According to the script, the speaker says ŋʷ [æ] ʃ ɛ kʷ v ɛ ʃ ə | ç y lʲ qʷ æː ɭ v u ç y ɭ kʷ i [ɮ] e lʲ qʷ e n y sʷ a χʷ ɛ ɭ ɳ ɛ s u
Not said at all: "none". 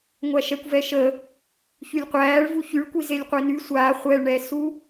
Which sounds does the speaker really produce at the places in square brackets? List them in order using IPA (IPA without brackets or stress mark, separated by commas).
æ, z